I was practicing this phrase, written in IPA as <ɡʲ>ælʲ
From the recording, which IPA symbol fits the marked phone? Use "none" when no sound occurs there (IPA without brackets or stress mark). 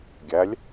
ɡʲ